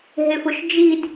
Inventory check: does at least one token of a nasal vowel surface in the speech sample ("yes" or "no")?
no